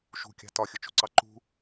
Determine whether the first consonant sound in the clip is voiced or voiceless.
voiceless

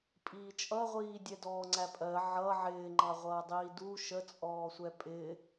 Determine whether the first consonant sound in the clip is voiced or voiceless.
voiceless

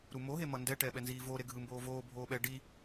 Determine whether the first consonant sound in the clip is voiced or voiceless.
voiced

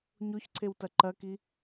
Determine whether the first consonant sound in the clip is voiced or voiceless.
voiced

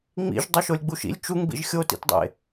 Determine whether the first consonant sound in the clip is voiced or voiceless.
voiced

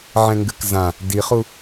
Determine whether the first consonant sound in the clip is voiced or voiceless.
voiced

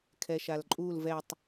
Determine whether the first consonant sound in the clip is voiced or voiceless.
voiceless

